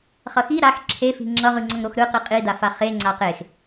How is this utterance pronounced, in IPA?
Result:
χʌxi ɾax ǁʰefi̤ ŋ͡ǁʌʁɯ ŋ͡ǀʌŋɾoxɾɯ qiqʼidafa χe ŋ͡ǀaqex

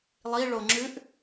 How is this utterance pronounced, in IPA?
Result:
lˠi ɭoŋ͡ǁʉʔ

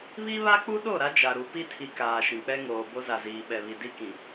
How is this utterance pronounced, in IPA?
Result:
βi˦βa˦ k͡pu˦ɗo˦˨ɾa˦ d͡ʒa˨ɾu˨˦ pi˦tʰi˨ kaː˨ʃĩ˨k͡pɛ˦ŋoː˨ bo˦za˨ziː˨ ɓɛ˨βi˨ di˦kĩ˨

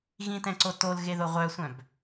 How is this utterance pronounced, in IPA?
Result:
ɣĩtɛ̃ǀo tolɣeðo ʁʷœsʷœ̃b

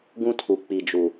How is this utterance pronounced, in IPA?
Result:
ɡũ˦tʰu˨ k͡pi˨d͡ʒu˨

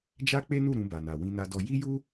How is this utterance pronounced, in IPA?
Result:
d͡ʒa˦k͡pe˦nu˦˨ ɾũ˧ba˨na˨ wĩ˧na˧dɔ˧ ji˦ju˦

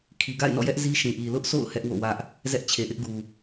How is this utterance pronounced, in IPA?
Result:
kʰi˨ɡa̰˦˨ɪ̯nɔ̰˦˨jɛ˦ʔ zi˦ʃĩ˨ʔi˨ lʊ˦ʔsʰo̰˦˨ʊ̯ hɛ˦ʔwo̰˦˨wä˦ʔ | zɛ˦ʔt͡ɕʰe˨ ʔɪ˦ʔɡu˨

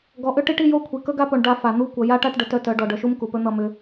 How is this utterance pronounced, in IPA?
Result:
ɡɔ˨ʔʏ˦ ʈi˦ʈi˦jo˦kʷʰi˨ kɵ˦ɡa˦po˨ɳ ɖa˦fa˨ n̪u˦kʷʌ˨ ja˦ʈa˦ʈɖə˨ tœ˦tœ˨˦ɖɔ˨ ɖœ˨ʃu˦m ku˨pɵ˦n̪ʌ˦˨ mʏ˦

